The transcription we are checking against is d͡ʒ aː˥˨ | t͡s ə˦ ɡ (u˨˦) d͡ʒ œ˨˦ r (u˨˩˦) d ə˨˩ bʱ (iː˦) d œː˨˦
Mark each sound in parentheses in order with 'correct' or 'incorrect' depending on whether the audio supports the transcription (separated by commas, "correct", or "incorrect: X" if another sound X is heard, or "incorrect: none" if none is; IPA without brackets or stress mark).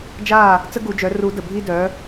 incorrect: u˨˩˦, correct, correct